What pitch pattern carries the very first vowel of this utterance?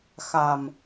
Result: low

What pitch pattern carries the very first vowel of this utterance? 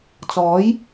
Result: rising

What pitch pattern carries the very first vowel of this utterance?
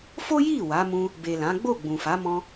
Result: high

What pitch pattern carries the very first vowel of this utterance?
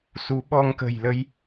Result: rising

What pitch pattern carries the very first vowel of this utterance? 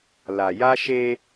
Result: low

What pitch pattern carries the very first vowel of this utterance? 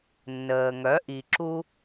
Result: low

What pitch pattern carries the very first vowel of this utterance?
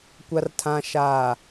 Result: low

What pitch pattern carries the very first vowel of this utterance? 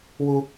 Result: high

